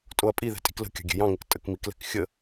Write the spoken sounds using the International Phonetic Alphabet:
tʼ o ɐ̯ pʼ i ð ɛ̤ tʼ i̤ k l ə̤ kʲ ɑ̤ ɡʲ ɛ̤ j ɑ̃ ŋ ɪ k tʼ ə k m i k l ɛ̤ k xʲ ə

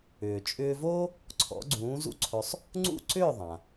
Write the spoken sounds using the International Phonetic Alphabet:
ʏː˩ t͡ʃʼ ʏː˧ v o˥ | ǀʰ ɔ̰˩˥ ɡ͡ǀ ũː˩˥ z ṵ˥˩ ǀʰ ɵ˧ sˤ | ŋ͡ǀ ṵ˥˩ ǀ ʏː˥˩ ðˤ ã˩

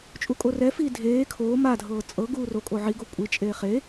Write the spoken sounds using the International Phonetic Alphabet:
t͡ʃʼ u kʼ o r ɛ f iː dʱ eː kʰ oː m a dʱ ɤː t͡sʼ ɤ ɡ uː r o kʼ o ʕ i ɡ o kʷʼ i t͡ʃʼ eː χ e

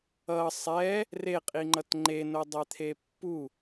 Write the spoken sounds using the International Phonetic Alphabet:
ʌ sˤ ɛ | r e qʼ i ŋ͡ǃ ʌ t ŋ͡ǃ e n o dˤ ɛ t̪ʰ e pː u

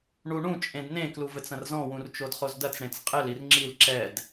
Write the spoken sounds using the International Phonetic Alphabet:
ɳ u ɳ ũ t͡ʃʼ ẽ d n ẽ k l u v ɘ t͡s ɐ̃ r z ɔ̃ w ũ r t͡ʃ o d χ o z d ɐ t͡s ɽ ẽ t͡s qʼ ɘ l i r ŋ͡ǁ i l ǁ ɛ d

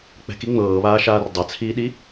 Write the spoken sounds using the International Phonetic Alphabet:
k͡p ɛ̤ k i ŋ͡m ɤː β aː ʃ aː r dˤ a t͡sʰ iː ɗ i

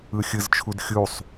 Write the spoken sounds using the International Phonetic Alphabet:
ɯ xʲ ɯ z t͡ʃʰ u d xʲ u sˤ

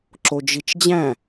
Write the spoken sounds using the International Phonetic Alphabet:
ǁ o d͡ʒ i t͡ʃ d͡ʑ æ̃

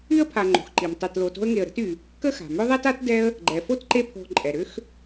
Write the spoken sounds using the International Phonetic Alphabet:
y˥ ə̯ pʰ a˨ ŋ͡ǃ o̤˩ x ǃ i˩ m tˤ e˨ t l o˨ t o̤˦ ə̯ ŋ e˨ ə̯ ɾ ə̤˦ t y˩ | k ə˥ x a̤˩ m ʏ˦ ðˤ ɛ˥ t a˥ t d ɛ˦ ə̯ | ɡ͡ǃ ɛ˩ f o˥ t ǃ e˦ pʰ o̤˨ ǃʼ ɛ˩ ɾ ʏ˦ x

